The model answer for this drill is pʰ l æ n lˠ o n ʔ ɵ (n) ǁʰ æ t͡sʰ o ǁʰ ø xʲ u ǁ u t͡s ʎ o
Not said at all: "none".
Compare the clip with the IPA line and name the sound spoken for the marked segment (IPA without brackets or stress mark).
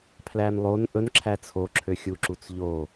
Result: n